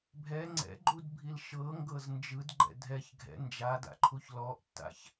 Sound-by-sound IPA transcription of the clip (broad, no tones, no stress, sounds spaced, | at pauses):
bʱ ɛ ŋ͡ǀ ɛ̰ ɡ͡ǃ u d bʱ i l ʃ ɤ ŋ ɡ ɤ z n d͡ʒ ɯ d ɡ͡ǃ ɛ̰ dʱ ɛ ç ɡʱ ɛ̰ n d͡ʒ a d a̰ ǃʰ u ç l ɔ ʔ tː a̰ ç